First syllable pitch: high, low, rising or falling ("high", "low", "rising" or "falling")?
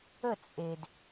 falling